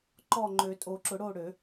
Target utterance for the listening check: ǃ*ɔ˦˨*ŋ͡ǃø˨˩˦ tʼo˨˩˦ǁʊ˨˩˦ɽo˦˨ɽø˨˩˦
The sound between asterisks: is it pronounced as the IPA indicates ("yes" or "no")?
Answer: yes